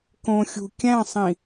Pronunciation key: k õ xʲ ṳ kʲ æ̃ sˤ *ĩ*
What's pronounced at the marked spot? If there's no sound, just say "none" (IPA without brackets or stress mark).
ĩ